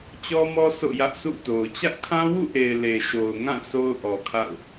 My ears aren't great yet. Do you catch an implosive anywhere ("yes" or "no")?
no